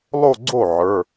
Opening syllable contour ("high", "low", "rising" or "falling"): falling